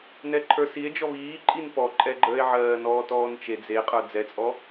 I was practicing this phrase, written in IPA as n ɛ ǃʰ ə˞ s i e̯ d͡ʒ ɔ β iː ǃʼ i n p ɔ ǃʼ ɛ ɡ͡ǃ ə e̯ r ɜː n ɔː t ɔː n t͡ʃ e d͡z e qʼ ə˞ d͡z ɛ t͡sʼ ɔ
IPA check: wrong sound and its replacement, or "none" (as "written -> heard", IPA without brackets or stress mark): r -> ʕ